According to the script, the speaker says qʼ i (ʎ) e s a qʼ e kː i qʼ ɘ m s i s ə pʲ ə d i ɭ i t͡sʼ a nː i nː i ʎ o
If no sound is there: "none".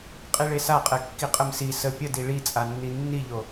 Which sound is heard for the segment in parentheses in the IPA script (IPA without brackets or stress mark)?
ɭ